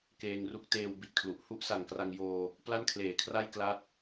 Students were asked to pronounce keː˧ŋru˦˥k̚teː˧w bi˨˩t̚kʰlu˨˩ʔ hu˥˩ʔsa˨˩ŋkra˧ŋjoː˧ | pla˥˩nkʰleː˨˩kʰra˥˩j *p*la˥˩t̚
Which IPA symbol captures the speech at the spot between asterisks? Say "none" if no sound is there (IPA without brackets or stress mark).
k